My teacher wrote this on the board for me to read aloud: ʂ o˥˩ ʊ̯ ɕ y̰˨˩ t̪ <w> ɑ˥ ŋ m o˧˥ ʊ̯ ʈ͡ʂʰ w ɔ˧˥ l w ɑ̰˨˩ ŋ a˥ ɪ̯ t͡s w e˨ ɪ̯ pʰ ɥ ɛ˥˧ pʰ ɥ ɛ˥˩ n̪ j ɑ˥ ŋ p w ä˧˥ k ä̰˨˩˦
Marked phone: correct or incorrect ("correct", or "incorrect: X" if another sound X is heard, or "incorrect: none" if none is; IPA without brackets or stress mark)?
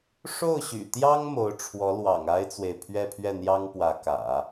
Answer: incorrect: j